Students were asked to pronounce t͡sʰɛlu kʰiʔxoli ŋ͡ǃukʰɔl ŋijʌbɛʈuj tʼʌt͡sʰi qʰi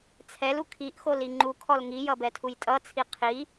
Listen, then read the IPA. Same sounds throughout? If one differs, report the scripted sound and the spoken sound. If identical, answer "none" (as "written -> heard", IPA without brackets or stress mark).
ʈ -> tʰ